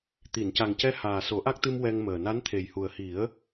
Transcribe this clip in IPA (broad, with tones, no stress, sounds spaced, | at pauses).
t̪ i˨˩˨ n c a˨˩ ŋ c ɛ˧˥ h aː˨˩ s o˨˩˦ ʔ a˦˥ k̚ t̪ ɨ˧ m w ɛ˧ ŋ m əː˨˩ n a˧˥ n t̪ʰ e˨˩ j h u˨˩ ə̯ h i˨˩˦ ə̯